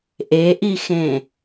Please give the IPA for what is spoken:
ʔ e ʔ i x ẽ

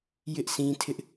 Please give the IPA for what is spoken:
j ɪ˦ ʔ s ĩ˦ tʰ ɪ˦ ʔ

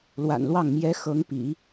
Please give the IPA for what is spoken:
l w a̰˨˩ n l w ɑ˥˩ ŋ m j ɛ˧˥ x ɤ˧˥ ŋ p ḭ˨˩˦

